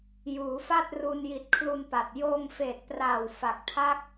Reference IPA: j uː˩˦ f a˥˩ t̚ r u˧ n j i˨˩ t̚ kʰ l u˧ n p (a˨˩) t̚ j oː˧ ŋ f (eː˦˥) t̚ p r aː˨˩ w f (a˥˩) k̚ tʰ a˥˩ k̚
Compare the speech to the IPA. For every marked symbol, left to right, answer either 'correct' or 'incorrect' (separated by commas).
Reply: correct, incorrect, incorrect